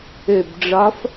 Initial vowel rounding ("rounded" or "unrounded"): rounded